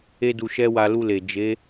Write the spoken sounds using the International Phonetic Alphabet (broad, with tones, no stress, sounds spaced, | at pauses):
e˦ d u˧ ʃ ɛ˦ w a˧ l u˧ l e˨ d͡ʒ e˨˦